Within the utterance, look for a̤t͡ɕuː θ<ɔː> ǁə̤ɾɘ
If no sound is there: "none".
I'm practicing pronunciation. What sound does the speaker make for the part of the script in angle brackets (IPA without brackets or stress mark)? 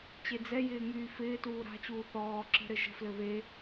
ɔː